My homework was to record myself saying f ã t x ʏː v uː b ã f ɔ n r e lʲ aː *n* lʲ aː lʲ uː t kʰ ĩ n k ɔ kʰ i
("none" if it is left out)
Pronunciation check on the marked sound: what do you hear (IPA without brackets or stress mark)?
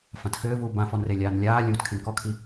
n